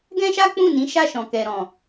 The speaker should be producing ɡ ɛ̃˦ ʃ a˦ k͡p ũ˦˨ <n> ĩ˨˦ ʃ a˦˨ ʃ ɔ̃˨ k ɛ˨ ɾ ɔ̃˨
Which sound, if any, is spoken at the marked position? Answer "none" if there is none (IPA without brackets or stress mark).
n